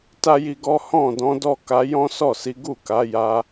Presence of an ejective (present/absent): absent